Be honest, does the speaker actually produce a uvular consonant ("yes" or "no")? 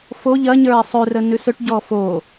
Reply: no